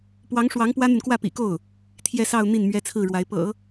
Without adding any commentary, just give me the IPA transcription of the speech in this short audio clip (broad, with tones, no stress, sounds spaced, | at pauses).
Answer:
p w ɑ˧˥ ŋ ʂ w ɑ˧˥ ŋ p w ä˥ n̪ y˨ n k w ä˥˩ p ḭ˨˩ k o˥˩ ʊ̯ | t̪ʰ j ɛ˥˧ s ɑ˥˧ ʊ̯ n̪ i˥˩ n m ɥ ɛ˥ t͡sʰ ɹ̩˥˩ ɻ w a˧˥ ɪ̯ p ɤ̰˨˩˦